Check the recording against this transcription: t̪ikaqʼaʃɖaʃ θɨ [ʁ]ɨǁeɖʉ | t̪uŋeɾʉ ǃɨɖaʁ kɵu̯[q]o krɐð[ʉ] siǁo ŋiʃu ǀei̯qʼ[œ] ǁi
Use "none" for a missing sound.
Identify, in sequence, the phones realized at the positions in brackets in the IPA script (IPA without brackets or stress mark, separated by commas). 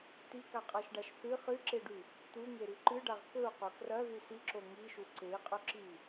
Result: χ, q, ʉ, ɵ